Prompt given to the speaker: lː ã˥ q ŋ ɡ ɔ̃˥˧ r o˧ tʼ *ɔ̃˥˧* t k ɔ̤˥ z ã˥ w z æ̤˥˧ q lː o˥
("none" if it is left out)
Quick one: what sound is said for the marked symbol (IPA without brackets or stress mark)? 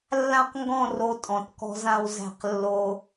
ɔ̃˧˩